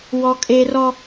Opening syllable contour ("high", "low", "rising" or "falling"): high